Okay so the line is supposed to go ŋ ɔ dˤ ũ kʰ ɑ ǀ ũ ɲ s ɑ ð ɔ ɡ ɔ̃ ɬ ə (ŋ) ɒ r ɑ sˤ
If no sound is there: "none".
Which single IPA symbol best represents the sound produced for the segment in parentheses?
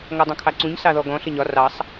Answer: ɲ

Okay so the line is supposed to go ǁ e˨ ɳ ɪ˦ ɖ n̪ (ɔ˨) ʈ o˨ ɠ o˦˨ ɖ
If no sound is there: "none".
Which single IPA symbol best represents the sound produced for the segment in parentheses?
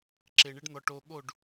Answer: ɔ˨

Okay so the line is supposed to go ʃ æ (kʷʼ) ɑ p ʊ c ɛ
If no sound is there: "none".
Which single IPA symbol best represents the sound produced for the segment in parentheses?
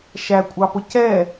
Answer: kʷʼ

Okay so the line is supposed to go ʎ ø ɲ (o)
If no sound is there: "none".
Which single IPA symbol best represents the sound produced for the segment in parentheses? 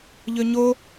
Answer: o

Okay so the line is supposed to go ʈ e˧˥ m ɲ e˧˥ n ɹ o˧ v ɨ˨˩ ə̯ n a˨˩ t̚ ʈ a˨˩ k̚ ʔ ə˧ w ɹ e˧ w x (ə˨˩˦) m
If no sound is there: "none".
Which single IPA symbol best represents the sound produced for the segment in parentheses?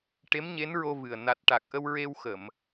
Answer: ə˨˩˨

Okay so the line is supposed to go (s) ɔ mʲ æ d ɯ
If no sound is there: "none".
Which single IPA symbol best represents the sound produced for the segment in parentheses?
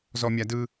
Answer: z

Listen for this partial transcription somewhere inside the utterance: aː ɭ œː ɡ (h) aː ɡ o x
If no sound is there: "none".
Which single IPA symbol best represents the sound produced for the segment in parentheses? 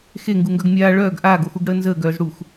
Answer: ʔ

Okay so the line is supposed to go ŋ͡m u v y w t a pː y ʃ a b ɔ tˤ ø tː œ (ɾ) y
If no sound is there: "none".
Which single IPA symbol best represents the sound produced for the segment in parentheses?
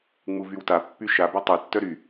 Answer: ɾ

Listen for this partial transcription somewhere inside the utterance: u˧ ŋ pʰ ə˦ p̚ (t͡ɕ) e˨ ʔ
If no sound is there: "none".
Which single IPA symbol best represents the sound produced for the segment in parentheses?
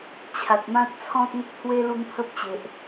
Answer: t͡ɕ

